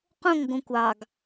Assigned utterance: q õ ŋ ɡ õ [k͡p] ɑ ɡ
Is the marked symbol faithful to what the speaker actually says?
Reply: no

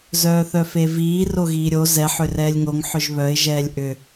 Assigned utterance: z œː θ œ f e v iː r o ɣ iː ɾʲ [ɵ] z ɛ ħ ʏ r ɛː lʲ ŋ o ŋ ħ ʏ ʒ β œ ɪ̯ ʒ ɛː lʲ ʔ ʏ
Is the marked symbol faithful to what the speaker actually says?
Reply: no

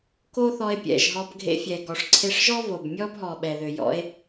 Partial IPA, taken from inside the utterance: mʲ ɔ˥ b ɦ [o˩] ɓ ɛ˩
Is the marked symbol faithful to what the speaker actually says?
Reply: no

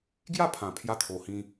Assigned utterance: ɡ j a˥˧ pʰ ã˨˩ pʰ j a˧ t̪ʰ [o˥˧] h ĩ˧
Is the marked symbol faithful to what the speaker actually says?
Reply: no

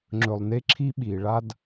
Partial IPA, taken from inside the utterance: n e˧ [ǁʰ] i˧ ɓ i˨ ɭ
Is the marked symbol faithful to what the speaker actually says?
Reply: yes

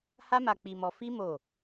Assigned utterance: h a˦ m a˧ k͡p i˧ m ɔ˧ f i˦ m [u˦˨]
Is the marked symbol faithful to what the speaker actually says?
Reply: no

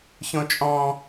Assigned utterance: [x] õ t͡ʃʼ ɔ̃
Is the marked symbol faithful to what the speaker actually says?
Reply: no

